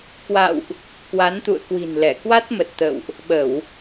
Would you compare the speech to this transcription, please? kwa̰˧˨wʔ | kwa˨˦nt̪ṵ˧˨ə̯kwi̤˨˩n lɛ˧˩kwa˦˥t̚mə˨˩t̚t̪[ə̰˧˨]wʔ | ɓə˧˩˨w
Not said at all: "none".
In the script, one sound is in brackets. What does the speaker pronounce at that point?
ə̰˧˨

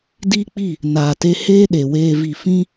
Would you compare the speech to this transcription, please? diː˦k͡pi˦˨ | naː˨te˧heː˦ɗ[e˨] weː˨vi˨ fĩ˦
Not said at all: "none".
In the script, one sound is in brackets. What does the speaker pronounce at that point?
e˨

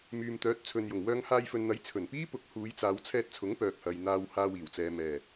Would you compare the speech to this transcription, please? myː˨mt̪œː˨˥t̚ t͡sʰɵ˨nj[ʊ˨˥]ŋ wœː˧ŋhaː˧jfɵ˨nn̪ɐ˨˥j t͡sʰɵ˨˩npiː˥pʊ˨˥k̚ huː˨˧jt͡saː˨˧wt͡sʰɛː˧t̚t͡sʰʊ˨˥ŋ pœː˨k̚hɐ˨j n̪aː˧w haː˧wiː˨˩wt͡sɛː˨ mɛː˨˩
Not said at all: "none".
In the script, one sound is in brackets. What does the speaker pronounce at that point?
ʊ˨˩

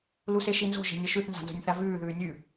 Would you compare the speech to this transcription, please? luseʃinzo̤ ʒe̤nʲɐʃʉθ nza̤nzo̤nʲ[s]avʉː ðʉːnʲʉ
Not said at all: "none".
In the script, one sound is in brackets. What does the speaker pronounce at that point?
θ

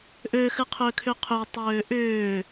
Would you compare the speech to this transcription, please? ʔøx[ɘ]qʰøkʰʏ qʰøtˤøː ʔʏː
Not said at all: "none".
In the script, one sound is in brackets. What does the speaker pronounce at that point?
ɘ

